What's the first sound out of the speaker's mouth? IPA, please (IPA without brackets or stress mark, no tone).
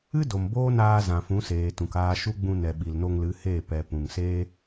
ɨ